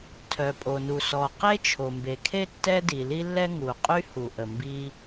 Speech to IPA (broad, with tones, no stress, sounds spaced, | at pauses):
tʰ œ˩ pʼ o˩ n u˩ s ɔ˩ q e˥ t͡ʃʰ o˩ m b e˩ kʰ e˥ tː ɛ˥ d i˩ l i˥ lː ɛ˥ ŋ u˩ qʼ y˥ h u˩ ʔ ə˩ m b i˥